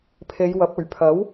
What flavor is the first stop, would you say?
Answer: aspirated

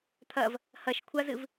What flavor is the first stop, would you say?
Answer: aspirated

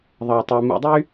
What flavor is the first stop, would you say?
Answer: plain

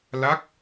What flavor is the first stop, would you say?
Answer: plain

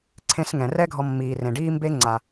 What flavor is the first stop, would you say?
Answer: click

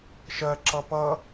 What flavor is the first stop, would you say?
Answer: click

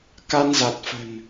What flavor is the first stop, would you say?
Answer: plain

